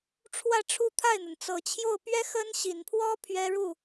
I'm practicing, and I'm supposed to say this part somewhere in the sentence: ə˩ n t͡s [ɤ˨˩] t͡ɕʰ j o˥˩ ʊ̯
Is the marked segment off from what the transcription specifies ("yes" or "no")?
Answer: no